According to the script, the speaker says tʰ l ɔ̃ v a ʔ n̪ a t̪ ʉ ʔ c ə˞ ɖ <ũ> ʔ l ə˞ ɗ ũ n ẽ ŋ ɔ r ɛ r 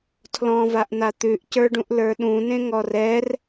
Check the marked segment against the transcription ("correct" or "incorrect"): correct